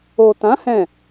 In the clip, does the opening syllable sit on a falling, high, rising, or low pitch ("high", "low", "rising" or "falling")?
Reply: low